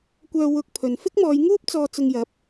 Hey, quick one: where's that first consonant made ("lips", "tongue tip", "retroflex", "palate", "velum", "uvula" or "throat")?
velum